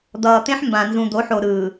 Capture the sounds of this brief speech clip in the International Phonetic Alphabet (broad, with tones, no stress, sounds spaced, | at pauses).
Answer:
d̪ ʌː˨ t̪ ẽ˦ ħ m b ã˨ n z ũ˨ d̪ o˨˦ ħ o˨ ɾ ɯː˨